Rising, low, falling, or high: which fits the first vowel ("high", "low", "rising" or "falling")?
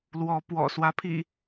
rising